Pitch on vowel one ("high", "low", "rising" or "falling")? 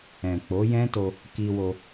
low